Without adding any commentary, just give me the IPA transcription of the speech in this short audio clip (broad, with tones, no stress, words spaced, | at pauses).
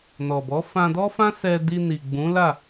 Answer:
nɔ˨bɔ˨˦ fã˧dɔ˦fã˦ sɛ˧ di˧ ni˨ɡ͡bũ˨˦la˦˨